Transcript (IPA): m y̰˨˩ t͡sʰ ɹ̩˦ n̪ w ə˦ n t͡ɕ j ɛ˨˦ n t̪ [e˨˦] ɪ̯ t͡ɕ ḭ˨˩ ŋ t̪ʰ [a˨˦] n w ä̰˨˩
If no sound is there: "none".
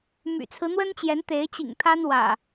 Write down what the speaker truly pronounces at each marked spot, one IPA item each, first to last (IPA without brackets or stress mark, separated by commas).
e˨˦, a˦